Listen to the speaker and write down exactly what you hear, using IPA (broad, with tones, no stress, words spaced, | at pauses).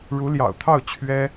ɻu˧˥ljɑ̰˨˩ʊ̯t̪ʰɑ˥˩ʊ̯ t͡ɕʰɥɛ˥